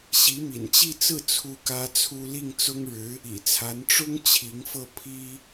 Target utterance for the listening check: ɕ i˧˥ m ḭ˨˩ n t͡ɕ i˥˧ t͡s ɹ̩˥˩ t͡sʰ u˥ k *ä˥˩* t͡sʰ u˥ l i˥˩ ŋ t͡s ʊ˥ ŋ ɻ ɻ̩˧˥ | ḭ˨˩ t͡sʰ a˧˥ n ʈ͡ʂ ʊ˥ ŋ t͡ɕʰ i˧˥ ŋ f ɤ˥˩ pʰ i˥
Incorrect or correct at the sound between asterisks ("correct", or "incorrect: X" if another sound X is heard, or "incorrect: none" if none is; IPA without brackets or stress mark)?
incorrect: ä˥